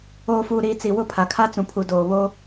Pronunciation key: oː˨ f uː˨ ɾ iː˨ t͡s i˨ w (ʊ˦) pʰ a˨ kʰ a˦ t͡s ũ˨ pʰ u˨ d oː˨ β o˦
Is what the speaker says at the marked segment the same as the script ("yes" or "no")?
no